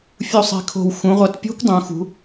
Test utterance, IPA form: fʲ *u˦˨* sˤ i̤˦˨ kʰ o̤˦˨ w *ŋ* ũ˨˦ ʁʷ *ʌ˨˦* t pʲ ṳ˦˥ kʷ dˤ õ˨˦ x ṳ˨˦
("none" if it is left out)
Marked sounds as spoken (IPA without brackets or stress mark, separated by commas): u˦˨, x, ʌ˨˦